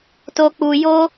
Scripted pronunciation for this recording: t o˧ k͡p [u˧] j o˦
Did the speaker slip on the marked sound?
no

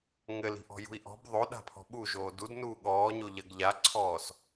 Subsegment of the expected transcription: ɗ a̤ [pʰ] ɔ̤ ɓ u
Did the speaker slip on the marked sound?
no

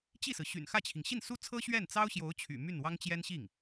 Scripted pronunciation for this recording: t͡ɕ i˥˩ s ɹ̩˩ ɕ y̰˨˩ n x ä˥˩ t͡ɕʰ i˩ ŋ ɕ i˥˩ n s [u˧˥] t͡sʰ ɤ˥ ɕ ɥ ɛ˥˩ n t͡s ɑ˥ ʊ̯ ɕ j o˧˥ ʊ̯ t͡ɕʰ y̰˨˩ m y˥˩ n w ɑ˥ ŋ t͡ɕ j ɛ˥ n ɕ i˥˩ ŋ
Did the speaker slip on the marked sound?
yes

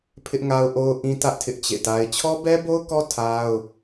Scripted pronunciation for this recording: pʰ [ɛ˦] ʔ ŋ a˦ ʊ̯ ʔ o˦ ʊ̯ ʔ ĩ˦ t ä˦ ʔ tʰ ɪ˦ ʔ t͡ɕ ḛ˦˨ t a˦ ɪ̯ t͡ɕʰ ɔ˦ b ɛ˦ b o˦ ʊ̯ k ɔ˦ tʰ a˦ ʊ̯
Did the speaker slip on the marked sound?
yes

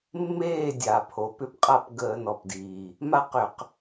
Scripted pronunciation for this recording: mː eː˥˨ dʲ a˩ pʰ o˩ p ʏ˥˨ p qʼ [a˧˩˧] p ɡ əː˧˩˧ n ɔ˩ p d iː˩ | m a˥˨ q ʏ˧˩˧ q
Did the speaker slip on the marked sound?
yes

